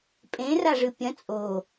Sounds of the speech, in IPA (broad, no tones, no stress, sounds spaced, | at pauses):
pʼ ẽ r a ʐ ɨ pʲ ɐ̃ t͡sʼ o